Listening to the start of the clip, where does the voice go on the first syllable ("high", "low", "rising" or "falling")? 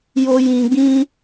high